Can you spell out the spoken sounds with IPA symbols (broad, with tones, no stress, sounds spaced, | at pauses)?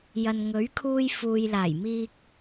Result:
j ɐ˨ n ŋ ɵ˨˥ ɥ kʰ uː˧ j f uː˨ j l aː˨˩ j m iː˧ k̚